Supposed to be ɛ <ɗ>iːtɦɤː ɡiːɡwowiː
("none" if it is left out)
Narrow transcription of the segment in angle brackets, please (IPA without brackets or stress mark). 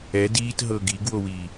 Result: d